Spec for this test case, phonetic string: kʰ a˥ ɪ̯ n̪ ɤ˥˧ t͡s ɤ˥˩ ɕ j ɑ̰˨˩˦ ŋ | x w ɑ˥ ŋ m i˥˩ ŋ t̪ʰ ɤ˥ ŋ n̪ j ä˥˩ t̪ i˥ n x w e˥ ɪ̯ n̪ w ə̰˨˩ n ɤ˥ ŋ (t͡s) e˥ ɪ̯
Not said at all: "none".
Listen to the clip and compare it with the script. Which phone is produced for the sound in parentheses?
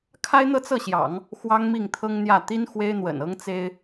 t͡s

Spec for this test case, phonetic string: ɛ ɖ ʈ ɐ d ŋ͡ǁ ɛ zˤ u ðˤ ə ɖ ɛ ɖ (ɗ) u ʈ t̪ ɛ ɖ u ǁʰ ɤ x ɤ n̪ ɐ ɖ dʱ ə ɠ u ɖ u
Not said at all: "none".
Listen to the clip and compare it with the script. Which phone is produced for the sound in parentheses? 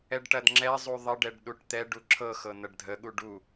ɗ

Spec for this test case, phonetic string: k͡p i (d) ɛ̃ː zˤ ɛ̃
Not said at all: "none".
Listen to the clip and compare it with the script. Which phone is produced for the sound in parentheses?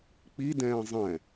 d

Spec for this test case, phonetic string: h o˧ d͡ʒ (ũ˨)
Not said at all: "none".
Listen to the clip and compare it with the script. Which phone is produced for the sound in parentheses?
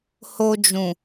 ũ˨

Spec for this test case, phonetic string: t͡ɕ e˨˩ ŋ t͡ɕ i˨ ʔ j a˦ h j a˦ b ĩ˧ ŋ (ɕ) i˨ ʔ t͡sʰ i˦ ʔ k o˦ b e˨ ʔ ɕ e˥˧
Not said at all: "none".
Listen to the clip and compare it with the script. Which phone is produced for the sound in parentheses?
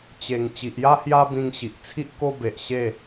ɕ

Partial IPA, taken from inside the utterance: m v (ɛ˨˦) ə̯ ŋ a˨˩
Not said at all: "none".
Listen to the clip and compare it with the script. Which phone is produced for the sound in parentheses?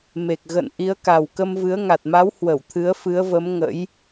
ɨ˨˦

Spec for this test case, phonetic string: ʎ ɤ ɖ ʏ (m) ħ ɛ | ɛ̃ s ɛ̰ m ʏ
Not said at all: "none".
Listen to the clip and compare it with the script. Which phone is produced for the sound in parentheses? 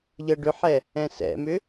none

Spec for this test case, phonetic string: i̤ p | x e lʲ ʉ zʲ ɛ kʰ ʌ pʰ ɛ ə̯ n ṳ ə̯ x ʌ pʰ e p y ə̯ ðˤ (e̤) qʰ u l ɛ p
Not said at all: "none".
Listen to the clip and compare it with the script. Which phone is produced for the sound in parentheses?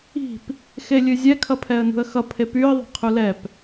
e̤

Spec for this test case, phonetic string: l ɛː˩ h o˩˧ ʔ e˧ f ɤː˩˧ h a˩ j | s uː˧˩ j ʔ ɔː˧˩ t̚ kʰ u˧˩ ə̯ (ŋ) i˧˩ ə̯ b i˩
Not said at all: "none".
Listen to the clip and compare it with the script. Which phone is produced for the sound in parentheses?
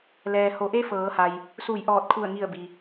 ŋ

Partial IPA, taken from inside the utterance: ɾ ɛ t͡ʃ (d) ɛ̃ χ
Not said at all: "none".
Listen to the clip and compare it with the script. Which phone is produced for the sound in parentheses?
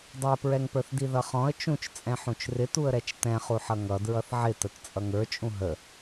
t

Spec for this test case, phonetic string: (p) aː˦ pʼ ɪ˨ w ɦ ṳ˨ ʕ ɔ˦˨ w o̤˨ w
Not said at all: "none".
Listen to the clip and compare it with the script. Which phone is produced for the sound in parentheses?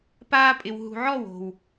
p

